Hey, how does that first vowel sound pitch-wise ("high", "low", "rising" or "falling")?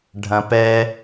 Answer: low